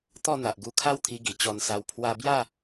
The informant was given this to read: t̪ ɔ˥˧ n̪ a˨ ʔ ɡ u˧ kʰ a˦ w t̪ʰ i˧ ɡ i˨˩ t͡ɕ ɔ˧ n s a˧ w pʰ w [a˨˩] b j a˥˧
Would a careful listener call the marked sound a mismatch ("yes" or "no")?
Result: yes